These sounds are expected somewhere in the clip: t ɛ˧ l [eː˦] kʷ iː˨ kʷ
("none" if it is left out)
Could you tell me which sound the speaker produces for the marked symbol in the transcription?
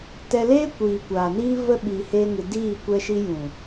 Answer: eː˦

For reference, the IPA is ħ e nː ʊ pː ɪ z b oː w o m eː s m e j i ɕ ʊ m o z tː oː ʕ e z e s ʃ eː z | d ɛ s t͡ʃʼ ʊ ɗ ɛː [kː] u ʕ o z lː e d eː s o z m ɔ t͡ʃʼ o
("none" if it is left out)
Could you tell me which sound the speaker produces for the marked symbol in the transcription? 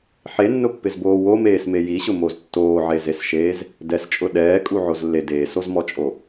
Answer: kʼ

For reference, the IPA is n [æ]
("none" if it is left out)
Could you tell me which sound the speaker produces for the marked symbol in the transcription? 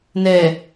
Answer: ɛ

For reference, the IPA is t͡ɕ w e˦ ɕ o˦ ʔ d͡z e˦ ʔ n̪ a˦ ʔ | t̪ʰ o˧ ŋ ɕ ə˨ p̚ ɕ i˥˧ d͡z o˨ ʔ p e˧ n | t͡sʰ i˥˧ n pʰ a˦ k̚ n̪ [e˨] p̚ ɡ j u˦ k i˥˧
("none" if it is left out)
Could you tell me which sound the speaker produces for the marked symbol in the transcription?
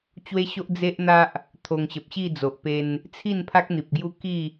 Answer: i˨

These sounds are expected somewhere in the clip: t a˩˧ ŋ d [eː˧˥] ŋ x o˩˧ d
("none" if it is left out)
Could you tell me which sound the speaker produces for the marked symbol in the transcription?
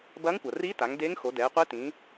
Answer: eː˧˥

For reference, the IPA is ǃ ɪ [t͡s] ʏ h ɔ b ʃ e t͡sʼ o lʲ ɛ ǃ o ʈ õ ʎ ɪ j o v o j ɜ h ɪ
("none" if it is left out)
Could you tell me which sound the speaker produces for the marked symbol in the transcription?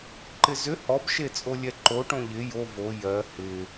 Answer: z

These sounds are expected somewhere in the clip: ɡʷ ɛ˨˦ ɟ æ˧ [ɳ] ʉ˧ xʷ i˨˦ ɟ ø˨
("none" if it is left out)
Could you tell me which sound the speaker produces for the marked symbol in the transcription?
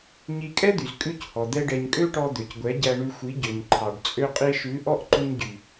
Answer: ɳ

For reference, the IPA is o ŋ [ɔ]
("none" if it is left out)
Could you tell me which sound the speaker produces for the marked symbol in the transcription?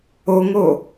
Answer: o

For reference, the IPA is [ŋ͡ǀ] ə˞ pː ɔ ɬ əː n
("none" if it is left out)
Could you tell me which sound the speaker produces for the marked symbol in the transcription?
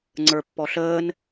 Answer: ŋ͡ǀ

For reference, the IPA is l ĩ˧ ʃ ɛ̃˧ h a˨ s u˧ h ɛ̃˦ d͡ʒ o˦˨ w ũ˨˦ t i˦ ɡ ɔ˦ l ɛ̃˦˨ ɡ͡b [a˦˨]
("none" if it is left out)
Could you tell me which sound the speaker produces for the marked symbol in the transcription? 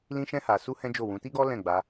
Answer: a˧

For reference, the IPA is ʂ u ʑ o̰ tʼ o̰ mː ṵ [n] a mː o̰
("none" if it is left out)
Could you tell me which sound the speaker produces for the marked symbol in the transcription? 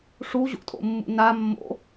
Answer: n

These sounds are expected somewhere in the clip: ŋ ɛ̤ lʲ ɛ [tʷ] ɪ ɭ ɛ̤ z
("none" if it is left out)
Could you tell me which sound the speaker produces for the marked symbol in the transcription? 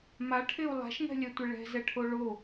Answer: tʷ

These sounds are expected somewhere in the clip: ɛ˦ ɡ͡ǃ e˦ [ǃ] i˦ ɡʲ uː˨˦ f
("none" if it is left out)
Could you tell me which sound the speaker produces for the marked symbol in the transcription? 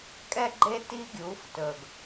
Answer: t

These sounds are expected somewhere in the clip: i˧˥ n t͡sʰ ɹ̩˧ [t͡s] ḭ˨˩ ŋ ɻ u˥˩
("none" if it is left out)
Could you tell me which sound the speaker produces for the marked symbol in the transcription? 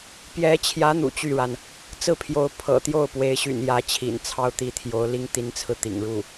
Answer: t̪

